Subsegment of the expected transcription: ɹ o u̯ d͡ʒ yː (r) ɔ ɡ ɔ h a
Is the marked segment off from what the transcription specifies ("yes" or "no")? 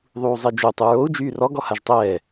no